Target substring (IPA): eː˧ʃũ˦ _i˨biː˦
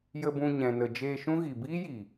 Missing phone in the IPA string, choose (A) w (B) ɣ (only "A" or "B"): B